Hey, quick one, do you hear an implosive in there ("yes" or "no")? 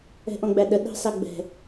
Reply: yes